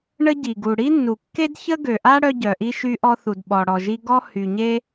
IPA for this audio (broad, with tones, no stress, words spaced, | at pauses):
ɳə˥ɟi˩ɡu˩ ɽi˥nːu˩kːe˥dçə˥ ɡø˩ʔa˥ ɽœ˥ɟœ˩ʔi˥ ʃy˥ʔɔ˥ θu˩dɓɔ˩ɽɔ˩ʒi˥ ɡɔ˥hy˩ɲe˥